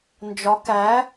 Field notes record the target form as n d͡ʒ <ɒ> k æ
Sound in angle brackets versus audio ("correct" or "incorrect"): correct